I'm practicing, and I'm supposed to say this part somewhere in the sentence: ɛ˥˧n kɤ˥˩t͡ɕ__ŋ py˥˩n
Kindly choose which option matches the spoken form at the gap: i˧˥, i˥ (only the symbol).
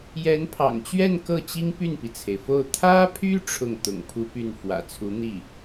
i˥